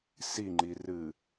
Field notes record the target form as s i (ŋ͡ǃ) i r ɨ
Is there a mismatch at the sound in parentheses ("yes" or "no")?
no